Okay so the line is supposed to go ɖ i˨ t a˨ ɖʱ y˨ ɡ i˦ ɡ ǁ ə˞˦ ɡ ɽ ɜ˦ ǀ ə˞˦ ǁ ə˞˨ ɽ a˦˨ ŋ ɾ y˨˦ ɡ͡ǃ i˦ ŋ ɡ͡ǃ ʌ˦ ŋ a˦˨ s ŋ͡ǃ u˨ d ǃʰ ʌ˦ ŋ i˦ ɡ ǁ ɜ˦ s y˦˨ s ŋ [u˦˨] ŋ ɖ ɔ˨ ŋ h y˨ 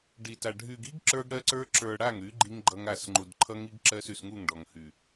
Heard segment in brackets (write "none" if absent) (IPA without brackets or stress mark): u˦˨